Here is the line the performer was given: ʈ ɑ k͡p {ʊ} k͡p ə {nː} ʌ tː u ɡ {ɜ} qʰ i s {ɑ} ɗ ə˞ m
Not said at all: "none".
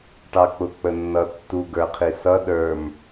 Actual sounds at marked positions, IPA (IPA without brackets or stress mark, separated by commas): ʊ, nː, ə˞, ʌ